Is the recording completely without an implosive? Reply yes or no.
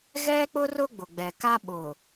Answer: no